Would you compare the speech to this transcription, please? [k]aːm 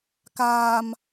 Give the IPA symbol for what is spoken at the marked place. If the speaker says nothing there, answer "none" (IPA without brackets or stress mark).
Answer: k